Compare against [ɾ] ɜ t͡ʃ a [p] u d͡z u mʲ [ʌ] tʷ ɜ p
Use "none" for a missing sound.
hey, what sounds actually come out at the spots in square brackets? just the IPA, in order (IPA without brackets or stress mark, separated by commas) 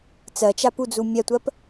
t͡s, p, a